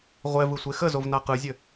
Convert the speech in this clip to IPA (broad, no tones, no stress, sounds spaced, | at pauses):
ʁʷ ɛ v ɯ sʷ e x ə z o v n a q ɯ zʲ ɘ